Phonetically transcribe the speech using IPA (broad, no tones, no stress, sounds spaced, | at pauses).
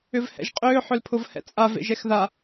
ʏ v h ɛ̰ ʒ qʼ ʏː ħ ʏ l pʰ ʊ v h ɛ̰ t͡sʼ a v ḛ ʒ ɛ x ð a